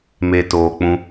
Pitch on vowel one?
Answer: low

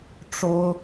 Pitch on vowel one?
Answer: high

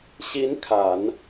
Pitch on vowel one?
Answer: rising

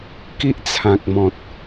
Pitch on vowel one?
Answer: high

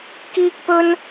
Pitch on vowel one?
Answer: high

